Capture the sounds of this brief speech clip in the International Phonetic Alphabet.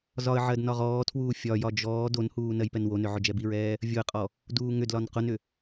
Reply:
z ɒ ə̯ ʕ ɜ d n ɒ ʁ ɔː tʰ w uː fʲ ɒ j ɒ d͡ʒ ɔː d o n h uː n ɜ j p ɛ n w o n ʏ ʕ ʊ d͡ʒ ɛ b i ɹ ɛː | vʲ o ə̯ qʼ ɔ | d uː ŋ ʏ d l ɒ n q ʊ n ʏ

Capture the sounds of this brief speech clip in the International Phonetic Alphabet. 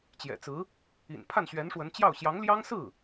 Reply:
t͡ɕ j ɛ̰˨˩ t͡s ɹ̩˧˥ | ḭ˨˩ n pʰ a˥˩ n ɕ ɥ ɛ˧˥ n ʂ w ə˧˥ n t͡ɕ j ɑ˥˩ ʊ̯ ɕ j ɑ˧˥ ŋ l j ɑ˥ ŋ s ɹ̩˥˩

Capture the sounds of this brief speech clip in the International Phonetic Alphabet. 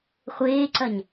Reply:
χʷ eː ǀ ɐ ɲ

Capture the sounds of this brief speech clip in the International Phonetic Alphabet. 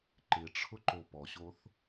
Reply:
ǃ ɪ ʈ͡ʂʰ ʊ ǃ o p ɔ ɕ o θ

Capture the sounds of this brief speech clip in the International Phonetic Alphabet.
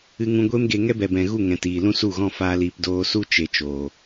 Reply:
ɨ˧ ŋ ũ˧ ɡʷ e˦ m ɡ e˧ ŋ ɛ˦ b ɛ˨ b ɛ̃˨ ɣ u˦˨ ŋ ɛ̃˨ t iː˨ l ũ˦ s u˦˨ ɣ ɔ̃˦˨ f aː˧ l iː˧ p d oː˧ s u˦ t͡ʃ e˧ t͡ʃ oː˨

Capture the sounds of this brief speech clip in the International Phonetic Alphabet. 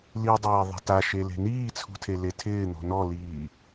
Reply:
l i dˤ eː ðˤ e̤ t a ʃ e l e̤ n iː t͡sʰ ṳ tʰ e l e tʰ ɪː n̪ ɔ̤ n ɔ l iː

